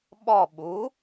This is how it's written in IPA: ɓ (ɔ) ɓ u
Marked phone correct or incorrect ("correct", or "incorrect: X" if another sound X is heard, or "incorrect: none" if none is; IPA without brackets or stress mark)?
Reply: correct